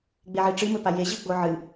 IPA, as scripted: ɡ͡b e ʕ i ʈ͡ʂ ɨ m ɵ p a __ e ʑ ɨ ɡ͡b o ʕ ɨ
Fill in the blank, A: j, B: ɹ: A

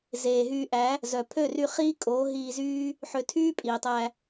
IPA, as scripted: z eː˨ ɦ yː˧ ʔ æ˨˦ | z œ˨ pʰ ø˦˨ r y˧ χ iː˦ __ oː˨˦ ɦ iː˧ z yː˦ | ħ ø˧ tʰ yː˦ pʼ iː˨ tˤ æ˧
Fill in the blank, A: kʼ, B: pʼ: A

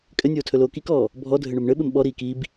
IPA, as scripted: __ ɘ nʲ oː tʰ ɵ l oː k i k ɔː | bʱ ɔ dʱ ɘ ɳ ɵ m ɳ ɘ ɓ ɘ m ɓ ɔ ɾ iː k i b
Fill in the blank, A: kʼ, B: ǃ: A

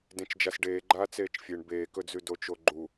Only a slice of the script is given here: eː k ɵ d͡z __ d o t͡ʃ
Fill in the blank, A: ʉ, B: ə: A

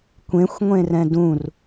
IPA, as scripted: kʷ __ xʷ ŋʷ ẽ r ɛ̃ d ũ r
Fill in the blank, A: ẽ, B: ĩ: A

